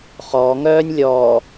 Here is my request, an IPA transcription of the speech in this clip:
χ ɔː ŋ œː nʲ lʲ ɔː

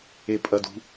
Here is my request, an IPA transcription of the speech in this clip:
e pʼ ɐ d ṳ

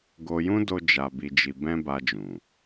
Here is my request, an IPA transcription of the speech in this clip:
ɡ o˧ j ũ˦ d o˧ d͡ʒ a˧ b i˧ d͡ʒ i˧ b ɛ̃˦ b a˧ d͡ʒ ũ˨

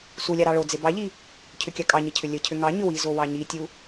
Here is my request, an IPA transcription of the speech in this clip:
s u lʲ ɑ ɾ ɑ ɭ o d͡z e b ɑ ʎ i | cʰ ʏ kʲ ɑ kʼ ɑ ɲ ə cʰ ʏ lʲ ə cʰ ʏ ŋ ɑ ɲ ʏ w i z o w ɑ ɲ i tʲ u

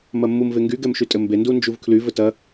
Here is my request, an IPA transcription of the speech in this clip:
m ɐ mː u m v e ŋ ɡ y ɡ ɛ m ʃ y tʼ ɘ m b e n d u n d͡ʒ u v kʰ l y v ɘ t ɐ

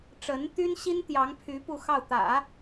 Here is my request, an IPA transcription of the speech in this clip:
ʈ͡ʂ ə˧˥ n t̪ y˥ n ɕ i˥ n t̪ j ɑ˧˥ ŋ pʰ y˧˥ p u˥˧ x ɑ˥˩ ʊ̯ t̪ ä̰˨˩˦

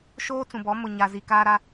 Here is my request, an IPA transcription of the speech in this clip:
ʃ oː˦ t͡s ũ˨ b ɔ˨˦ m ʊ˨ ɲ a˨ z i˨ k aː˦ ɾ a˦

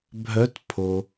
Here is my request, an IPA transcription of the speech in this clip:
bʱ œ˨˦ t pʰ o˩

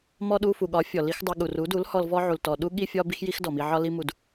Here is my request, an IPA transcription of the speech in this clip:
m ɔ˧ ɗ u˧ f u˨ ɠ ɒ˨˦ fʲ ɔ˨ l i˦ x dˤ u˧ ɠ u˨ r u˨˦ d u˨˦ l h ɔ˧ l v ɔ˦ ʕ u˨ l t ɔ˨ ɗ u˦ ɠ i˦ fʲ ɒ˦ b i˦ x j i˦ x d ɔ˨ m i˧ ʕ ɒ˦ l i˦ m u˧ d

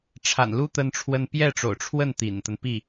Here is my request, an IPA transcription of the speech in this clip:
ʈ͡ʂʰ a̰˨˩ n l u˥ t̪ ə˥ n ʈ͡ʂʰ w ə˥ n p j ɛ˥˩ ʈ͡ʂ o̰˨˩ ʊ̯ ʈ͡ʂʰ w ə˥˩ n t̪ ḭ˨˩ n t̪ ə˦ n p i˥˩

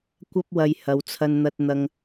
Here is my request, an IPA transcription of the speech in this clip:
kʷ ɐ˥ p̚ w ɐ˧ j h ɐ˨˧ w t͡sʰ ɐ˧ n n̪ ɐ˧ t̚ n̪ ɐ˧ ŋ

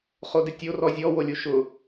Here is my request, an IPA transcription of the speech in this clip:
χ o d ɪ tʲ o r ɔ zʲ ɔ w o lʲ u ʃ ʊ

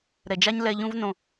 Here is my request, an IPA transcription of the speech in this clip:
ɾ ɛ˨ d͡ʒ a˦ ɲ l ɛ˧ ʎ ũ˦ v n õ˨

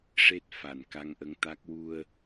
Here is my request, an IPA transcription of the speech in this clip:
ʂ e˦˥ t̚ f a˨˩˨ n k a˧˥ ŋ ʔ ə˧˥ ŋ t̪ a˦˥ k̚ w u˧ ə̯

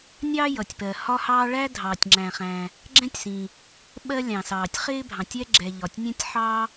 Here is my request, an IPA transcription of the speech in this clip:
nʲ ɑ˥ j ʌ˩ tʲ p ɜ˩ h ɒ˥ h ɑː˥ ɭ æ˥ dʱ ɑː˩ tʲ ŋ͡ǁ æ̃˩ χ æ̃˩ | ɡ͡ǁ ɛ̃˥ tʲ s ĩ˩ | ɓ ɜ˥ lʲ ɑ̃˩ s ɑː˩ tʲ χ ɪː˥ bʱ ɑ̃˩ tʲ ɛ˥ ɡ͡ǁ ɛ˩ ʎ ɒ˩ tʲ nʲ ɛ̃˥ tʲ ħ ɑː˥

